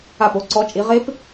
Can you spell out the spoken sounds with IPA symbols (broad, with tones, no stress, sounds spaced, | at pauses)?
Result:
a˧˩ p o˨˦ ǀ ɔ˨˦ t͡ʃʼ i˨˦ ʁ e˦˥ p